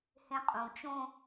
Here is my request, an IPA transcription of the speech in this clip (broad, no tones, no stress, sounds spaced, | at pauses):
h ẽ qʼ ũ t͡ʃ õ